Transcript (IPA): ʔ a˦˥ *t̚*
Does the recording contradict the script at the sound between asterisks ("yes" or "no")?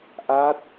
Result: no